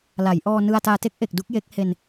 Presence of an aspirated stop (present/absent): absent